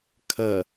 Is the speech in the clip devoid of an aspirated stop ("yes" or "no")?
no